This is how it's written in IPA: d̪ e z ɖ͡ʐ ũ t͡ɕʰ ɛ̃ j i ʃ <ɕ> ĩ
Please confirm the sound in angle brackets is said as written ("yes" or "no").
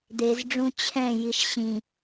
yes